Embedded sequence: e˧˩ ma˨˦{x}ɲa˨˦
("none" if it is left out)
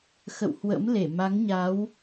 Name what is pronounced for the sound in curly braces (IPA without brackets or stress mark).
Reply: ŋ